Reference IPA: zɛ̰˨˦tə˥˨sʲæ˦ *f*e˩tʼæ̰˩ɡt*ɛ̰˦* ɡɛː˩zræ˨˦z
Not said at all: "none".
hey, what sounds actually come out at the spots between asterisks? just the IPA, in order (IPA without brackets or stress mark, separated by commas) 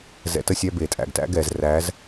b, æ̰˦